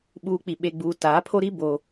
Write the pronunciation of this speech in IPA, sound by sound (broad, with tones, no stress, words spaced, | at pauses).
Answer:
ɓuː˨k͡pi˨ ɓe˨ɡ͡buː˨ taː˨˦pʰo˦ ɾi˦ bo˦